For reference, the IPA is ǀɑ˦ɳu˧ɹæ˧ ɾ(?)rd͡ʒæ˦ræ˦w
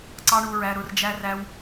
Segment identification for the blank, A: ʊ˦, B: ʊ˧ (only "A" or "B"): B